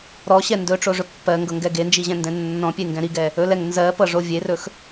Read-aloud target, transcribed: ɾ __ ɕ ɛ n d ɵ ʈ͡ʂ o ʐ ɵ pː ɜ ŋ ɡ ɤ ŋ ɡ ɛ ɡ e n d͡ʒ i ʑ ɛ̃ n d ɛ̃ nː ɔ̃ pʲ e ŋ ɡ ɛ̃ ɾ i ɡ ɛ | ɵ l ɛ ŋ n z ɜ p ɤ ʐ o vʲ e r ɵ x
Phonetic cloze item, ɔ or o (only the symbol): ɔ